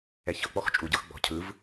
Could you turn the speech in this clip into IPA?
ɛçɤ k͡pɔxt͡ʃʼu ɟɤxɡ͡bɔ̤ cʰɯv

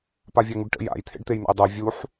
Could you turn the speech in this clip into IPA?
pavʲæŋuɖʈə̰ ja̰j t̪ʰḛɖt̪ejn̪a̰jdˤɛ vʲuħ

